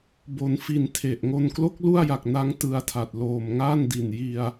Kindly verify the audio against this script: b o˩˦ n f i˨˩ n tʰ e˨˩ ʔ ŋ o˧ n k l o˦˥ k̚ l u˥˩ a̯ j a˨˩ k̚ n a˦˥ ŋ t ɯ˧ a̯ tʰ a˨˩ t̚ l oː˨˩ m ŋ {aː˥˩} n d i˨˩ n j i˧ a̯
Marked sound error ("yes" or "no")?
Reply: no